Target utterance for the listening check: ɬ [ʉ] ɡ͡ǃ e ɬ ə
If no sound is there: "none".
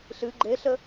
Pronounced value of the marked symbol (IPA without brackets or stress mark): ɨ